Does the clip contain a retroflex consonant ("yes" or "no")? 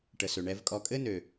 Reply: yes